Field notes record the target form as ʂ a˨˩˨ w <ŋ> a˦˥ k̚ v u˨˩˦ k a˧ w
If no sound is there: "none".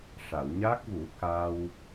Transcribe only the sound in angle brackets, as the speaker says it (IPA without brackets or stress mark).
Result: ɲ